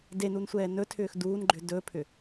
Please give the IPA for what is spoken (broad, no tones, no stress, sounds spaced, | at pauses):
d e n u n sʷ ɛː n ɵ tʰ ʏː x d uː n ɡ͡ǃ ʏ d ɵː pʰ ʏ